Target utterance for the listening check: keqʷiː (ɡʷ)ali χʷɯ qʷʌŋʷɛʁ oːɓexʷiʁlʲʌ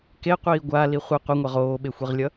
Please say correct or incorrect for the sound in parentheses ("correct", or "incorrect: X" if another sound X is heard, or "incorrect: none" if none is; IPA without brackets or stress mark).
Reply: correct